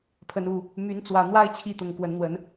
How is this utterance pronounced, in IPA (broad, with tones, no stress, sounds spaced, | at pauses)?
pʰ ə˨˦ n u˨˩ | m y˨˦ n t͡s w ä˨˩ n̪ w a˦ ɪ̯ t͡ɕʰ i˥˨ t̪ ʊ˨˩ ŋ k w ə˨˦ n n̪ w ə˨˦ n